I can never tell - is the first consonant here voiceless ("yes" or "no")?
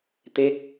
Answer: yes